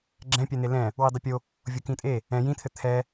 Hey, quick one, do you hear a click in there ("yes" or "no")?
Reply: yes